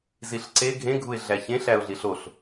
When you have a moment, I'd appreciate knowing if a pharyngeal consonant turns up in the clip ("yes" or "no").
no